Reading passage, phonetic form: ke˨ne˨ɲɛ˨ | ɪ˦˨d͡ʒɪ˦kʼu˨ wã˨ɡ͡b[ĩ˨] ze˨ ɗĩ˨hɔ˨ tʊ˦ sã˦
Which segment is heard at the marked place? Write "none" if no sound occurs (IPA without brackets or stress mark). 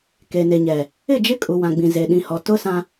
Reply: ĩ˨